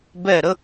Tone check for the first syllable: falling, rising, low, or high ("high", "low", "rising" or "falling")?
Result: falling